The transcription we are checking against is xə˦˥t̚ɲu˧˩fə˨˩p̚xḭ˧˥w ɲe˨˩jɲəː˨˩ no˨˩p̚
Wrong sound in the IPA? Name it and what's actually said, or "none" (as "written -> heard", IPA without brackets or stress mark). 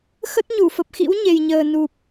o˨˩ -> u˨˩